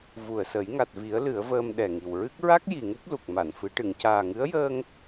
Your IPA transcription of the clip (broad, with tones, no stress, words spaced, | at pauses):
vu˨˩ə̯sə˨˩˦j ŋa˨˩t̚vi˨˩˦ə̯ lɨ˨˩˦ə̯vəː˧m ɗɛ˨˩ŋi˨˩wɹɨ˦˥k̚ ɹa˦˥k̚ ji˨˩ŋu˦˥p̚ lu˨˩k̚ma˨˩˨nfɨ˨˩˦ ʈɨ˨˩˨ŋcaː˨˩ŋɨ˧˥ə̯jəː˧ŋ